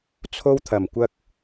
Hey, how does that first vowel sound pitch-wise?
high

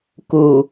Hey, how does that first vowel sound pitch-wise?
low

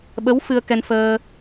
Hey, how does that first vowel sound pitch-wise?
rising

